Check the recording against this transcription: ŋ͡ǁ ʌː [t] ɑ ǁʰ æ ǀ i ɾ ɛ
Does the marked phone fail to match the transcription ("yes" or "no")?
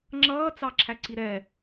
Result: yes